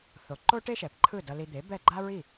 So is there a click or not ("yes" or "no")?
yes